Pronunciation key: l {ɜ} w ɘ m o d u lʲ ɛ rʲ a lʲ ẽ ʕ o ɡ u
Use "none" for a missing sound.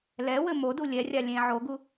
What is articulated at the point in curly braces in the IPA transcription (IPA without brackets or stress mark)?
ɛ